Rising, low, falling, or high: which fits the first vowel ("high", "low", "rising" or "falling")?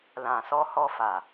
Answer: low